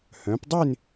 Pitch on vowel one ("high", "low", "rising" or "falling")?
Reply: rising